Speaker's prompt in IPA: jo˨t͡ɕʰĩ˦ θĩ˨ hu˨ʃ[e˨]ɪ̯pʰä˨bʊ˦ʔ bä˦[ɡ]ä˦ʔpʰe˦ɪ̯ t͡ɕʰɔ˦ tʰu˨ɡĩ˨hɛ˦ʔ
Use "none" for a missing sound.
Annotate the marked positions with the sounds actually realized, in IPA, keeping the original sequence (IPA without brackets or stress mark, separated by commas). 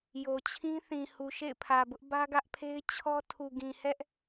ḛ˦˨, ɡ